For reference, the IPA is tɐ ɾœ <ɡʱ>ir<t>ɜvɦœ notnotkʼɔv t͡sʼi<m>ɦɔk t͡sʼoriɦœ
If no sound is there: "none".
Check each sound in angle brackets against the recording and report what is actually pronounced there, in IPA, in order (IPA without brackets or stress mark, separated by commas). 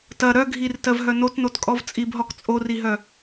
ɡʱ, t, b